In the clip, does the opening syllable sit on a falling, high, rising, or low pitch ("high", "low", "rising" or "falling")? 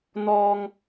high